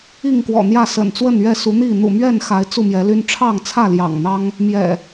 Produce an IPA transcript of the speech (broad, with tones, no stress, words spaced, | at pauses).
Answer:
i˥˨ŋkwɔ̰˨˩n̪jä˥˨ sə̰˨˩nt͡swə˥˨nɥɛ˥˨su˨˦ n̪i˥˨ n̪ṵ˨˩mɥɛ˥˨nxa˨˦ɪ̯ t͡su˥˨mjɛ˨˦ly˦n ʈ͡ʂʰɑ˥˨ŋt͡sʰä˥˨ljɑ̰˨˩ŋn̪ɑ˦ŋ | mjɛ̰˨˩